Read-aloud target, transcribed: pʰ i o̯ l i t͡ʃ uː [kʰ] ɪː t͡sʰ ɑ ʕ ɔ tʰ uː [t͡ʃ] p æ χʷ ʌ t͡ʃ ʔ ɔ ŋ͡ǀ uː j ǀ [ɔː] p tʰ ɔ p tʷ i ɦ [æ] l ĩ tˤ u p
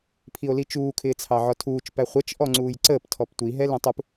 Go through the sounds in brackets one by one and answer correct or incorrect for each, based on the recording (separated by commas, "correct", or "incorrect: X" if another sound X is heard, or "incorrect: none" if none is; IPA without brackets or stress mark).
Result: correct, correct, incorrect: əː, incorrect: ɛ